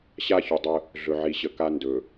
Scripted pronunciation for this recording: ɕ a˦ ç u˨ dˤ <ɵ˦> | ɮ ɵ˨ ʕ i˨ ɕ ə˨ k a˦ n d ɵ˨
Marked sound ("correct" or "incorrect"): incorrect